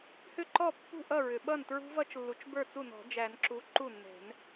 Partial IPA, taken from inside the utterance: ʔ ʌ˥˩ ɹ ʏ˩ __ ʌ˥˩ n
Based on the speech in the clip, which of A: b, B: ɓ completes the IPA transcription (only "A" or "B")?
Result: B